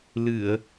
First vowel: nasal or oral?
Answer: oral